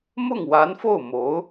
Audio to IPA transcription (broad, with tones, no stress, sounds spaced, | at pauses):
m ʊ˥˩ ŋ w a˧˥ n f o˥˩ ʊ̯ m o˧˥ ʊ̯